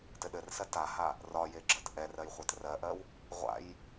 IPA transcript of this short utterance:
tɘɗɘrsɜ taha | rɒje ɡ͡ǁɜtʔɛrɜj χʷɛtrɜʔɜw | ʁʷa̰j

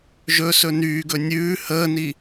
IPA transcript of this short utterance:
ʒɵsɵ nyːɡɵ nʲʉː həːni

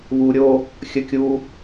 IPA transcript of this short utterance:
βuɾʲo | xʲəkʲu

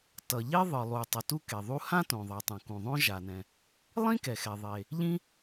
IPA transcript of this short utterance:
tʌ˩ʎe˥ ðˤɯ˩ lˠu˩tˤʌ˩ tu˥ke˩ðˤu˥ hã˥tõ˩ðˤa˩tˤũ˩ kũ˩ðˤõ˥ ʒa˩nɛ̃˩ | lˠĩ˥kɛ˩xɛ˩ðˤe˩ | ʎĩ˥

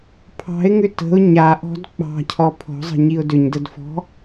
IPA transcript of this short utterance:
pʰɑ̤ɪ̯ŋʏ tə̤ʊ̯ ɲaʔɔ̤d k͡pɑ̤cʰɔ pʰɔ̤zˤə̤ɲiʊ̯ dʏɲdədfɔ̤

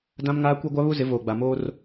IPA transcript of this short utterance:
dã˦mŋaː˦ kʷe˦ɡʷa˦βu˦ zɪ˨˦voː˨ɡ͡ba˨moː˦r

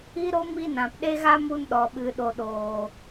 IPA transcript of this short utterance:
i˦ɾo˦ mi˧ nã˨pɗe˦ɣa˦ mu˧nɗɔ˨ ɓɨ˨ɗo˨ɗoː˨

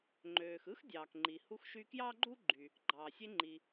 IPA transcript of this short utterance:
ŋ͡ǃøː˩xɯ˥x dʲɑː˩kŋ͡ǃi˩hu˧xʃy˧ kjɑː˥ɡ͡ǃu˥ɡ͡ǃy˩ | ɡ͡ǃɑː˩sʲe˧ŋ͡ǃi˩

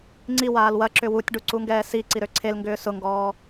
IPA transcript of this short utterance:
ŋ͡ǀiwaːl wɐǁʏ wutʲɖuǀuŋɡɛː siǀiɾø ǀʰelŋɡʏː sʊŋɡɔː

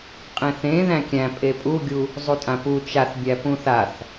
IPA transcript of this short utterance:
qʼẽθẽ ðæ̃kʲæ̃ pʼepʼuɡʲu | zˤutʼãpu t͡ʃaθbʲæ pũθaθ

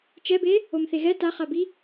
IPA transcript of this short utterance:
t͡ʃɛbe | omθeɣɛ taχabi

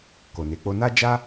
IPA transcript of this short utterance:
ko˨ne˨˦k͡po˦ na˦d͡ʒa˦

